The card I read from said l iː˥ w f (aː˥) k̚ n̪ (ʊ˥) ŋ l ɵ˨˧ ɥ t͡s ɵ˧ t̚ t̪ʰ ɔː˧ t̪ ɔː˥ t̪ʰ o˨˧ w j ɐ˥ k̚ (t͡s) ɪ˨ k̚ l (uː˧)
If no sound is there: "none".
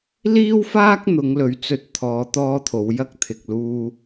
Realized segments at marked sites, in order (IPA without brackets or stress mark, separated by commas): aː˥, ʊ˨˧, t̪ʰ, uː˧